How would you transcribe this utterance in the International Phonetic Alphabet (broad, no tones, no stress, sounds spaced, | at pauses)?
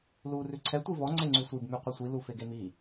l u r ʉ ǀʰ ɛ tʷ i v ɔ ŋ͡ǀ e ŋ͡ǀ ʉ sʷ i b m ʉ qʷ œ sʷ i l u f e ɡ e m i